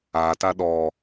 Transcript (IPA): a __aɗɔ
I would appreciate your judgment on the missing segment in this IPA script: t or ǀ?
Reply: t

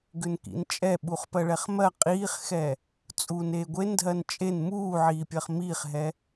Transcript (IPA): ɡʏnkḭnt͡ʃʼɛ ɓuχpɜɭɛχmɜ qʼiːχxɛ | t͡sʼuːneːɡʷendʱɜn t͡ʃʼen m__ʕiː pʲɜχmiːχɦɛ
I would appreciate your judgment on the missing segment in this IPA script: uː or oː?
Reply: uː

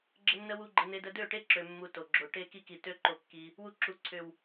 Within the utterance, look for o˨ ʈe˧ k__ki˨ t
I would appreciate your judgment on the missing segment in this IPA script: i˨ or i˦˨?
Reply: i˦˨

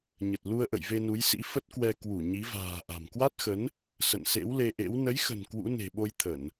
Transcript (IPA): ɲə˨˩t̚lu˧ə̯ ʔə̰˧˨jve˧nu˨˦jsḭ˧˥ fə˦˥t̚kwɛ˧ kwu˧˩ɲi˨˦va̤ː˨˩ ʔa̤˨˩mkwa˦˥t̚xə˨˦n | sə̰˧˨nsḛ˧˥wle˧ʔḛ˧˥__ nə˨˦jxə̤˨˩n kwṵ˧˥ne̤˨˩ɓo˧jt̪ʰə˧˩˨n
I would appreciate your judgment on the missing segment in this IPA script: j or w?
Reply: w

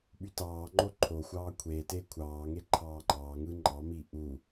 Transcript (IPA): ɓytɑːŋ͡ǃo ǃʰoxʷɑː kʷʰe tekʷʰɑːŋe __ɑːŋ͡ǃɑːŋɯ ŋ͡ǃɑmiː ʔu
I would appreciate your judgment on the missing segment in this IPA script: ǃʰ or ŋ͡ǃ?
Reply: ǃʰ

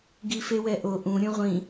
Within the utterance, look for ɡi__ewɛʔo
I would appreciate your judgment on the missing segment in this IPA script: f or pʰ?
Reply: f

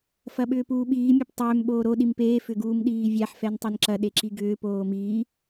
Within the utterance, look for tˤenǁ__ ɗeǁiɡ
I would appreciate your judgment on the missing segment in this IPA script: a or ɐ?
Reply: ɐ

